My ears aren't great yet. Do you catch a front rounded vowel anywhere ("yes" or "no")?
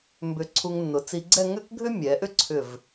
yes